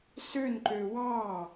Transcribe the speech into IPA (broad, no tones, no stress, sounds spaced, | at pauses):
s ø n ǃ ø w ɑ